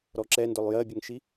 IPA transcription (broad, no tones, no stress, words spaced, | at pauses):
ɾɔǁɛndʊlˠ jɜbʲəŋʃi